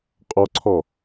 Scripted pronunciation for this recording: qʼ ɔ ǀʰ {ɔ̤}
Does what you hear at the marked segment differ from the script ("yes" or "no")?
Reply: yes